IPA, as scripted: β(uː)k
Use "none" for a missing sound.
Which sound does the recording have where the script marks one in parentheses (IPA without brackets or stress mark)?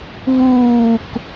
uː